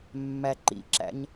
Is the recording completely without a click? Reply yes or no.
no